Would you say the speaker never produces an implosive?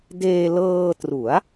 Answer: yes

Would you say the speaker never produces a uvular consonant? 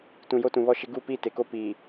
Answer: yes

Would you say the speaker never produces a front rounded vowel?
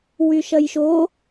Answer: no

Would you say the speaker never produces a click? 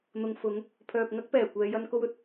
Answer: yes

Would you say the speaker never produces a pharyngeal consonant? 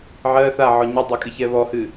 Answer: no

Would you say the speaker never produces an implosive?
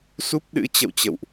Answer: no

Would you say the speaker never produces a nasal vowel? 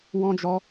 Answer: no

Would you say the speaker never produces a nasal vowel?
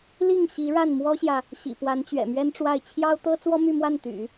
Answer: yes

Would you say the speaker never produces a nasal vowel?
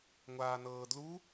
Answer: yes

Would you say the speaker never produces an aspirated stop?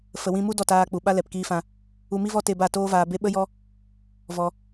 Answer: yes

